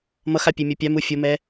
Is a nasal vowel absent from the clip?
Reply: yes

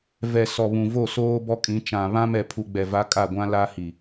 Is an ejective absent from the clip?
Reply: no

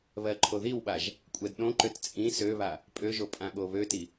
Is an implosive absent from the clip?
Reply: no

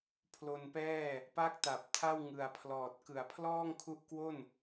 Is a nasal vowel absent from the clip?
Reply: yes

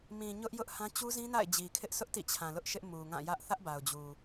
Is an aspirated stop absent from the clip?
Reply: no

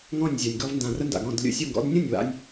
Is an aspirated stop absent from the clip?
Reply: yes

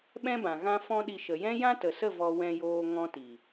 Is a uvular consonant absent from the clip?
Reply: yes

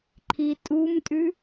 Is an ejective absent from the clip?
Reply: no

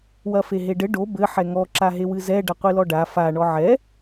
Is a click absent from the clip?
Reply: no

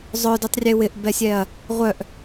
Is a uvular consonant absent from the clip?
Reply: no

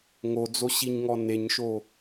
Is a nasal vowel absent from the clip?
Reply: yes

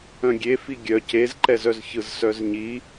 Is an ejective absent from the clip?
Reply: yes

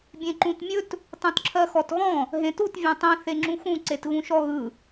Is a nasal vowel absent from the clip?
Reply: no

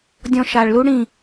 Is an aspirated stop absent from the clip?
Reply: yes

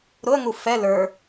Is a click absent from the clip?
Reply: yes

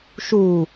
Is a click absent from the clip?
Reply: yes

